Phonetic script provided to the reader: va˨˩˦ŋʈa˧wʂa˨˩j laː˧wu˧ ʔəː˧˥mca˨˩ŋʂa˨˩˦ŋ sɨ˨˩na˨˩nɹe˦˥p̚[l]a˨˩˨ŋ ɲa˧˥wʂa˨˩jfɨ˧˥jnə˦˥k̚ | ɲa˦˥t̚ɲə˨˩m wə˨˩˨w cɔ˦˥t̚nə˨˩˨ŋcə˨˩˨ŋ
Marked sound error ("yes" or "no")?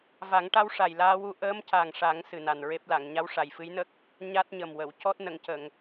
no